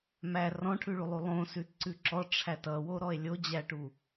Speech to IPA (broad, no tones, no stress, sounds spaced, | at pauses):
m æ r ɔ̃ ʈʰ ʉ ɭ u lˠ u lˠ õ s ʉ t ǀ ʉ ǁ ɔ ʈ͡ʂʰ æ t ʌ w o ɾ ɔ e̯ lʲ o d͡ʑ æ ʈ u